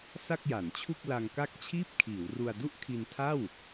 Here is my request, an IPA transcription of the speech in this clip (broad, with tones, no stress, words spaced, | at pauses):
sa˥˩k̚ja˩˦nt͡ɕʰu˥˩k̚ la˧ŋka˥˩k̚ t͡ɕʰiː˥˩p̚kʰiː˩˦wru˧a̯ du˥˩ʔkʰi˧ntʰa˥˩w